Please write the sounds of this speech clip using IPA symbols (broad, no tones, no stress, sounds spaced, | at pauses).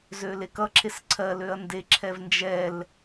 z ø l e k ʌ ǁʰ e s ǀʰ ɜ l ø ɐ̯ n d e ǁʰ ɛ v n d͡ʒ ɛ l